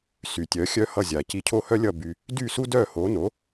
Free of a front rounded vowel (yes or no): no